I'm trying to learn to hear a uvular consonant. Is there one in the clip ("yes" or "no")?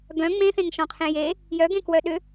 yes